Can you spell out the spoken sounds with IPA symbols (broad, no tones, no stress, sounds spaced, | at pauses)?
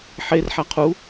ħ e r ħ æ qʰ u